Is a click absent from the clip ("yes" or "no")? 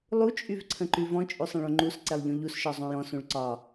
no